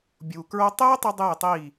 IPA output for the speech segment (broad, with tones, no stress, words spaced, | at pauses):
bʲu˨kɹo˦ tˤeː˦ tˤi˦ dˤeː˦˨tˤiː˦˨